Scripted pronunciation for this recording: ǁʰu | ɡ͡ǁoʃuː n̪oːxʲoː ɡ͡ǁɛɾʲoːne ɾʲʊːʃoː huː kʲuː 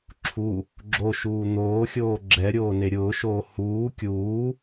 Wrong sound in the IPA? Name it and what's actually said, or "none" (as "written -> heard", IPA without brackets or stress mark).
none